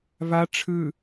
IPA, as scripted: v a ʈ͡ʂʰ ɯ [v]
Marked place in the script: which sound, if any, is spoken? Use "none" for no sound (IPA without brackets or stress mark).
none